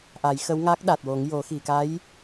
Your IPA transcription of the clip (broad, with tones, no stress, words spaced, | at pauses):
ʔa˨˩˦jxə˧˥w ŋa˦˥k̚ ɗa˨˩t̚wo˨˩˦ŋjo˨˩˦ xi˨˩˨ka˧˥j